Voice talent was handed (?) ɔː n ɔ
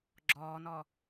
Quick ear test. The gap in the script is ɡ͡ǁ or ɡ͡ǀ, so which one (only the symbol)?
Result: ɡ͡ǁ